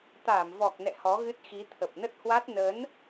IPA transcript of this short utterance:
t̪ aː˧˩ m v ɔ˨˩ k̚ n ɛ̰˧˨ h ɔ˨˦ ɣ ɨ˦˥ t̚ x i˨˦ t̪ʰ ə˨˩ p̚ n ə˦˥ t̚ h w a˦˥ t̚ n ə˨˦ n

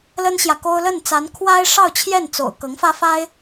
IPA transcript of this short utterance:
l ə˥ n ɕ j ä˨ k o˥ ʊ̯ l ə˥˩ n t͡s a˧˥ n kʰ w a˥ ɪ̯ ʂ ɑ˥˧ ʊ̯ t͡ɕʰ j ɛ˥˩ n t͡s o̰˨˩ ʊ̯ k ɤ˧˥ ŋ f ä˥ f a˥ ɪ̯

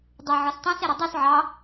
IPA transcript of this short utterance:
dˤ ɘ ʕ ɔ s tˤ ɛ̃ s ɛ ɾ ɘ dˤ u s ʕ ɑ

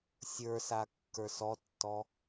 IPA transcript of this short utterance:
sʲ ə˞ s a kː ə˞ s ɔ tː ɔ

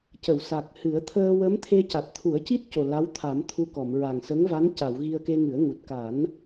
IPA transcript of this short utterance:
c ə˨˩˨ w s a˨˩ k̚ h ɨ˨˩˦ ə̯ t̪ʰ əː˧ w ə˧˥ m t̪ʰ e˧ c a˨˩ t̚ t̪ʰ u˨˩˦ ə̯ c i˦˥ t̚ c o˨˩ l a˧˥ w t̪ʰ a˨˩˦ m t̪ʰ u˧ k ɔ˨˩˨ m ɹ a˨˩ ŋ s ə˧˥ ŋ v a˧˥ n c a˨˩˨ w ɣ i˧ ə̯ k e˧ ŋ ɨ˨˩˦ ə̯ ŋ u˨˩ t̚ k a˨˩˦ n

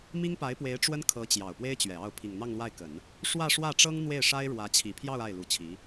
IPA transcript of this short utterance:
m i˥ ŋ p a˧˥ ɪ̯ p w e˧˥ ɪ̯ ʈ͡ʂ w ə˥ n kʰ ɤ˧˥ t͡ɕ j ɑ˨˩ ʊ̯ p w e˥ ɪ̯ t͡ɕ ɥ ɛ˨˩ ɑ˥˩ ʊ̯ pʰ i˨˩ ŋ n̪ ɑ˥˧ ŋ l w a˥˩ ɪ̯ k ə˨˩˦ n | ʂ w ä˥˧ ʂ w ä˥˩ ʈ͡ʂ ɤ˥ ŋ n̪ w e˥˩ ɪ̯ ʂ a˥ ɪ̯ ɻ w ä˧˥ t͡ɕʰ i˨˩ pʰ j ɑ˥˧ ʊ̯ a˥˩ ɪ̯ l u˧˥ t͡ɕʰ i˧˥

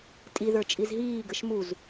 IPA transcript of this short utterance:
tʼ i ð ə˞ t͡ʃʼ i z ɦ iː ɡ ə ʃ m u z

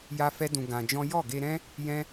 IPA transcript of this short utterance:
j a˦ f ɛ˦ d ũ˧ ɡ ã˧ d͡ʒ ɔ̃˦ j ɔ˦˨ ɡ e˧ ɾ ɛ̃˦ | j ɛ̃˦

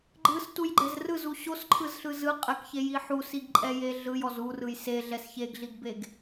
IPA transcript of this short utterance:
ɡ͡ǃ ɯ s t u j ɡ͡ǃ ɛ z r ɯ z u ɕ o s ǃʰ ɯ z ɬ ɯ z ɯ qʼ ɛ k ç e j i ħ u s i ɡ ǃʼ ɛ j e ɮ ɯ j ɔ z u r ɯ j s e ɮ ɛ s ç e ɡ ɮ i ɡ b e ɡ

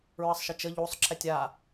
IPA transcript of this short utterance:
ɹ ə sˤ ʃ ə t͡ʃ ə ʎ u sˤ ǁʰ ɛ tʲ a

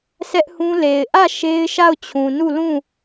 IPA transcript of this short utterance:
sʰ ɛ˦ ʔ h ũ˦ l e˨ ɪ̯ ʔ ä˦˨ ʃ e˦ ɪ̯ ʃ a˦˨ ʊ̯ t͡ɕʰ ũ˨ n u˦˨ l ũ˦˨

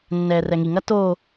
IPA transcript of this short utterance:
nː ɛː r ɛ ŋ i ŋ ɐ t oː

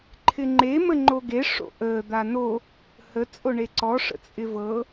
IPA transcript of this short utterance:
ǃʰ ɪ ŋ͡ǃ e m ə ŋ͡ǃ o ɡ e ʂ o̰ ʔ əː d̪ a n o | h ə t͡sʼ o ɳ e ǀ ɔ ʂ ə̰ t͡sʼ ɪ v ɤ

